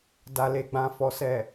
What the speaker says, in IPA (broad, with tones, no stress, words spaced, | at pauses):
da˨le˨ɡ͡bã˨fɔ˨ sɛ˨